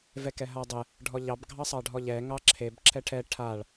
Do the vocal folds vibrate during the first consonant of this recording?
yes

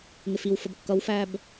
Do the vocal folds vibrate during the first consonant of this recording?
yes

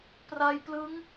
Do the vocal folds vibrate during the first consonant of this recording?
no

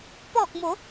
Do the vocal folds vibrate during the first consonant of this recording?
no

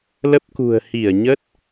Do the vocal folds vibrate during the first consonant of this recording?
yes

